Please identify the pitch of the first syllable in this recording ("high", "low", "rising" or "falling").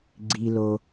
low